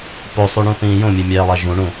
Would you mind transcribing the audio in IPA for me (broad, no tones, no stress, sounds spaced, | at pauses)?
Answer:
p o sˤ u ɳ ũ θ ĩː j õ mʲ e mʲ æː lˠ æ ʒ ũ ɳ ũ